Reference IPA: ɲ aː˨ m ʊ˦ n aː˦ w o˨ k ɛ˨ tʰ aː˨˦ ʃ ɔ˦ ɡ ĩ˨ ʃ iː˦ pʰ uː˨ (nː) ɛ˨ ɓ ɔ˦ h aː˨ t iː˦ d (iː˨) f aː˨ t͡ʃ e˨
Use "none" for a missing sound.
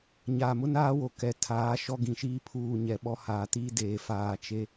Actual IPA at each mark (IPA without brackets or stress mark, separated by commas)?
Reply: ɲ, eː˨